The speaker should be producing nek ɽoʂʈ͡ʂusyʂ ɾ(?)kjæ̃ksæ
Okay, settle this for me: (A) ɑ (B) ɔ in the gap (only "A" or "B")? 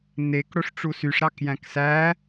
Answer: A